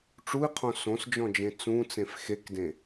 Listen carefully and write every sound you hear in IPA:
ʈ͡ʂui̯qʰõ sõsd͡ʒɔ̃d͡ʒẽ t͡sũt͡sẽf xekdẽ

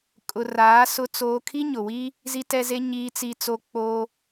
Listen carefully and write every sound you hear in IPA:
kʼʊ˨raː˨˦ sʊ˦t͡soː˦ kʰi˦ɲʊ˨wi˦ | zi˦tɛ˦ze˦ ɲiː˦t͡si˦t͡so˦ k͡po˦

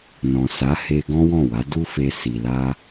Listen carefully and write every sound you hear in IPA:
nɔ̃˨sa˨˦ he˦ ɡɔ̃˦wɔ̃˦˨wa˨˦ du˦fe˧ si˨la˧

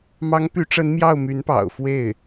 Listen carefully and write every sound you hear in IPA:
mɑ˧˥ŋpy˧˥ʈ͡ʂə˧˥n mjɑ˥˩ʊ̯my˧˥npɑ̰˨˩ʊ̯ fwe˥˩ɪ̯

